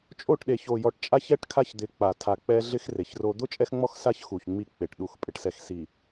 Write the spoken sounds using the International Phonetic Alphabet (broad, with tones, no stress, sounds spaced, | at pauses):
t͡ʃʼ o˦˨ ʈ ɗ e˨ ç o˨ j ɔ˨ ʈ t͡ʃʼ a˦ ç ɛ˦ ʈ kʰ a˦ ç d̪ ɪ˨˦ k͡p a˨ tʰ a˨ k͡p ɛ˦ ɮ ɪ˦ x r e˨ ç r o˦ d̪ ʊ˦ t͡ʃʼ ɛ˦ x ŋ͡m ɔ˦ x s a˦ ç x u˨ ç ŋ͡m i˦˨ k͡p e˨ ʈ ɗ u˨ x pʼ ɪ˨ ʈ s ɛ˨ x s i˨